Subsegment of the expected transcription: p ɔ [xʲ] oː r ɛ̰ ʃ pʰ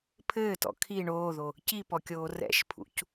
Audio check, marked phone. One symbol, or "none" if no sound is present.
kʲ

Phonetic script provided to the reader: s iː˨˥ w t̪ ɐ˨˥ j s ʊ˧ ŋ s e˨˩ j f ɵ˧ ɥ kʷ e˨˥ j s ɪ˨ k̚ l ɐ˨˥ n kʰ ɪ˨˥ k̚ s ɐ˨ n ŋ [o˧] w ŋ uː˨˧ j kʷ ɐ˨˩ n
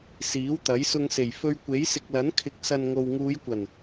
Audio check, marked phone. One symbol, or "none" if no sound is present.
o˨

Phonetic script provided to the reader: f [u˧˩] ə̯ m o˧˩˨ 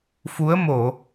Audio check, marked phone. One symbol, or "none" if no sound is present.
u˨˦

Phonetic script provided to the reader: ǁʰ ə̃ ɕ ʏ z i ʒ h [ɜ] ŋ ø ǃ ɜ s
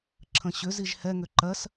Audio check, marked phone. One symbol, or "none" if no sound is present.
ɛ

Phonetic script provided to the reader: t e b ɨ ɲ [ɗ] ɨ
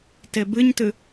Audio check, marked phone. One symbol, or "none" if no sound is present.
t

